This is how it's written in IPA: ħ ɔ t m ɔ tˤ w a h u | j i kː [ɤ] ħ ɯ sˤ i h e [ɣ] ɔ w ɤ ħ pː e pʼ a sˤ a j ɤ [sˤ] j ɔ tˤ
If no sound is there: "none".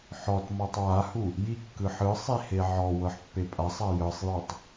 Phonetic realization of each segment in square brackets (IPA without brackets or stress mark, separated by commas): ɯ, ʕ, sˤ